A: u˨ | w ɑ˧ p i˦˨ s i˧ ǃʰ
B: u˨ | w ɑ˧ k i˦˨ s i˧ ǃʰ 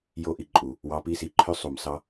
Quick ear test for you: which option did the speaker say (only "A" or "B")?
A